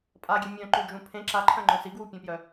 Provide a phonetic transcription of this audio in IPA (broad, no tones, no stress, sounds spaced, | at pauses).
pʼ a ɡʲ e mʲ œ̃ ǃ ʉ d͡ʒ ũ pʰ ẽ ǁ a ǃʰ œ̃ ŋ͡ǃ œ̃ s i ɡ w u pʲ ẽ p j œ